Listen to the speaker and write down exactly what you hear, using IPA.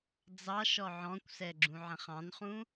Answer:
d͡z ɑ ʃ ɔ ʕ ɔ̃ kʷ s ɛ ɡ͡ǁ ũ ʕ ɛ̃ χ ɑ̃ n χ ũ

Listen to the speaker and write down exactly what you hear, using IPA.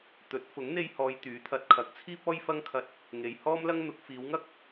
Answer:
t̪ ɵ˨˥ t̚ f ʊ˨˥ ŋ n̪ e˧ j h ɔː˨ j t̪ yː˨˥ t̪ʰ ɐ˨˥ t̚ kʰ ɐ˨˥ k̚ t͡sʰ iː˥ p̚ ɔː˥ j f ɐ˥ ŋ kʰ ɐ˧ t̚ | ŋ e˨ j h ɔː˥ m l ɐ˥ ŋ n̪ ʊ˨˥ k̚ f iː˨˧ w ŋ ɐ˥ k̚

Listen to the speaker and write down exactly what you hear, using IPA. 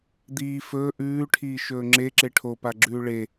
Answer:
d̪ iː f ɵː ʔ ʉː ʈʰ iː ʃ ɵː ŋ͡ǁ e ǁ e ʈʰ o p a ɡ͡ǁ ʉː ɭ e

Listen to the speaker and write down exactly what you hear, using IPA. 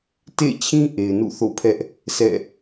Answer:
t ḛ˦˨ t͡ɕʰ ĩ˦ ʔ e˨ ɪ̯ n ṵ˦˨ θ o̰˦˨ pʰ ɛ˦ ʔ | sʰ ɛ̰˦˨

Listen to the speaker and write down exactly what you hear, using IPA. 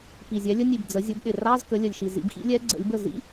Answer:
p i˨˩ zʲ ɛ˩˥ lʲ ə˧˥˧ nʲ i˨˩ b d͡z ə˩˥ zʲ ʊ˩˥ b ɗ ɪ˨˩ r ɑ˧˥˧ z k ə˩˥ lʲ ə˨˩ lʲ ʃ i˨˩ z ḭ˨˩˦ b x ḭ˧˥ lʲ ɛ˧˥ ɡ͡ǀ ə̰˨˩˦ lʲ b ə˥˩ z ḭ˧˥˧

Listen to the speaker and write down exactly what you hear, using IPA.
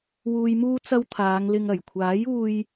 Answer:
w uː˨ j m uː˧ t͡s ɐ˧ w t̪ʰ aː˨˧ ŋ l ɪ˧ ŋ ɐ˨˩ j kʷʰ aː˨˥ j uː˧ j

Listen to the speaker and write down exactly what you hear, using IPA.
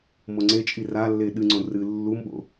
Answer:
m o ŋ͡ǀ e t͡ʃʼ i r a lː e ɗ ɨ ŋ͡ǀ õ r ɨ lː u m ɓ o̰

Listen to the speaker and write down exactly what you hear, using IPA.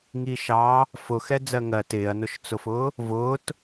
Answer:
ŋ i ʃ ɑ | f ʊ x ɛ d͡z ɜ ŋ ɜ t ɪː ɐ̯ n ʊ ʃ t͡s ʊ f ʊː | v ʊː t

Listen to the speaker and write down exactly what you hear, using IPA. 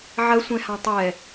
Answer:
ʕ ɐ sʷ ɛ̃ h ã tˤ ɛ

